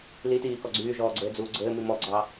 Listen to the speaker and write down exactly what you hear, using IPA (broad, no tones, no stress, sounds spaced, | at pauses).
l i t iː k ɔ ɡ͡ǀ yː ʒ ɔː ɡ͡ǀ ɘː d͡z uː ɡ͡ǀ ɘː m i m ɔ ɡ͡ǀ ɑ